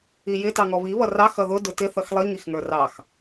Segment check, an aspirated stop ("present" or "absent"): absent